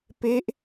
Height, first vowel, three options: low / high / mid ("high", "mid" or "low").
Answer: mid